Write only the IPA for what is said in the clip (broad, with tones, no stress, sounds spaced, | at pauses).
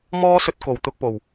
m ɔː˥ s ɵ˧ t̚ k o˨˩ w t̪ ʊ˧ k̚ p o˨˩ w